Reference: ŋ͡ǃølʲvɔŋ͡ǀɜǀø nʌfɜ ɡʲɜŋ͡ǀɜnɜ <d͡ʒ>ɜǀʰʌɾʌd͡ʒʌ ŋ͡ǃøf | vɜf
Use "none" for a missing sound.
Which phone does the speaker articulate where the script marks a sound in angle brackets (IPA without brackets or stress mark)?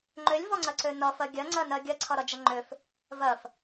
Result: ɡʲ